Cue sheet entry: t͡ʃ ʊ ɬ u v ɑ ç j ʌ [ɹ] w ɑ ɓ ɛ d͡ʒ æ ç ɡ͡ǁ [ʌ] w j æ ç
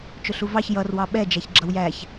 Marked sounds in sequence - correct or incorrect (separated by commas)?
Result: incorrect, correct